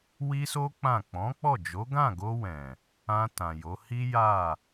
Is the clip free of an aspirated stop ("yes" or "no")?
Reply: yes